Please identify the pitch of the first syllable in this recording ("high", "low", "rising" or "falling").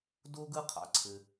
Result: high